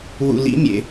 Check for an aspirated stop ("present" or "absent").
absent